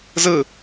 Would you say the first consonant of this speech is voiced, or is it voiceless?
voiced